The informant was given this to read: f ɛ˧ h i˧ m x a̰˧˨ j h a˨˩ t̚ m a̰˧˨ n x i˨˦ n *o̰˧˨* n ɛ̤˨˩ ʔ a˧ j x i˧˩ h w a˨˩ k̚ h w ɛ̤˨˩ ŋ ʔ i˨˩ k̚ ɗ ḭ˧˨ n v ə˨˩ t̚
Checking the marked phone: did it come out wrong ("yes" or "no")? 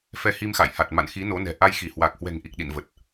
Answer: yes